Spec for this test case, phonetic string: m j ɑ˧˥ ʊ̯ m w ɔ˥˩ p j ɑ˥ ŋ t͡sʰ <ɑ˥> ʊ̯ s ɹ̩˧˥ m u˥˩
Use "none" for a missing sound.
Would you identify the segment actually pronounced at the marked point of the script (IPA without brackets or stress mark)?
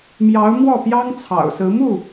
ɑ̰˨˩